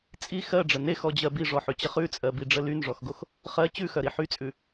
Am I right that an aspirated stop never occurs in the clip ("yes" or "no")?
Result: yes